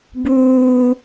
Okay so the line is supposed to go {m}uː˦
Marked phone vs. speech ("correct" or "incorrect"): incorrect